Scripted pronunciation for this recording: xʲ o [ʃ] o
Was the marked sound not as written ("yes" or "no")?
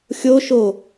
no